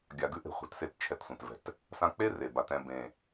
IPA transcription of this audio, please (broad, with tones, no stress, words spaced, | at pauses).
ɡʲa˨ɡʉ˦ ʔe̤˨χʷɛ̤˨tse˦t t͡ʃʰɛ˦tsʷɛ̃˨t vɛ̤˨t | sã˦ k͡pe˦ re˨ ba˨tɛ̃˦˨ bẽ˨